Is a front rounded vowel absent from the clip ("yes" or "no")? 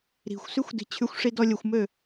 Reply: no